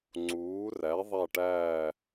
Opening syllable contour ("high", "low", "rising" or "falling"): rising